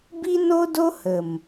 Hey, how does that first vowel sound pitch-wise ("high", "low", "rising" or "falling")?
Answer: high